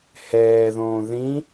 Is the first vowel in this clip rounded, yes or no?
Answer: no